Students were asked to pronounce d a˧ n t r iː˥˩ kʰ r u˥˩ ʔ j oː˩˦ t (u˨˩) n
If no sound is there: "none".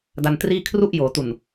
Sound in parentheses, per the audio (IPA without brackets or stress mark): u˨˩